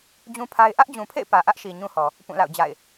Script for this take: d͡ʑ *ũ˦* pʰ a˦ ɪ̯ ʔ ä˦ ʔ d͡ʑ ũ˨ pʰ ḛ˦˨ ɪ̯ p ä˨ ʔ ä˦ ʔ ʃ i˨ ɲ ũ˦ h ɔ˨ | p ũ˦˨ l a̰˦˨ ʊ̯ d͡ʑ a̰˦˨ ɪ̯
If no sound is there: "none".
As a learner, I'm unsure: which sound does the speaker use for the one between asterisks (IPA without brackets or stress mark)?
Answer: ũ˦